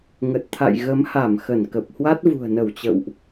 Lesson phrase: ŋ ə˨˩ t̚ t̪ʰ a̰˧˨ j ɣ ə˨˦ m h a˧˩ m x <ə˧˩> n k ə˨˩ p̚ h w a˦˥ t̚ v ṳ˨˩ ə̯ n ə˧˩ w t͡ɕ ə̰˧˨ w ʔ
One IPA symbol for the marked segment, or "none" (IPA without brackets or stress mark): ə˧˩